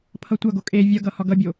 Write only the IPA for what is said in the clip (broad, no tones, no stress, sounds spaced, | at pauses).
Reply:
pʰ ʌ tʷ ʌ ɡ o kʼ e vʲ ʌ ɡ ʌ h ɒ ɡ ʌ bʲ o